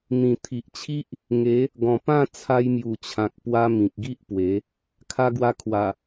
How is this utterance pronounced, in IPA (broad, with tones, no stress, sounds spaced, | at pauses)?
n̪ ĩ˨˩ t̪ʰ i˨ ʔ t͡ɕʰ i˦ ʔ | ŋ e˨˦ | ɡ ɔ̃˨˩ p ã˥˧ t͡sʰ a˧ j m j u˨˩ t͡ɕʰ ã˨ k̚ p w a˧ m ĩ˨ k̚ ɡ i˦ ʔ p w e˨˦ | kʰ a˧ ɡ w a˧ kʰ w a˨˩